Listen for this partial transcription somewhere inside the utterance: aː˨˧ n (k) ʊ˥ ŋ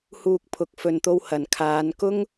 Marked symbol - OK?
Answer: yes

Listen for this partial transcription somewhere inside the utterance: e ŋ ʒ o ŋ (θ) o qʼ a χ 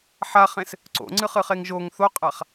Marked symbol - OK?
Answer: yes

